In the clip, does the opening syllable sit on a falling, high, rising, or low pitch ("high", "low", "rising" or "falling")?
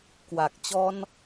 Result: low